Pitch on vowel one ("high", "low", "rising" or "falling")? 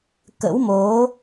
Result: rising